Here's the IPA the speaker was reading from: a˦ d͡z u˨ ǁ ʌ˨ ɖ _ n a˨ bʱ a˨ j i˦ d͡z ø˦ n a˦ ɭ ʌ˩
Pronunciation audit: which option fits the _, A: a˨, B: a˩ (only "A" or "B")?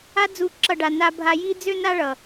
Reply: B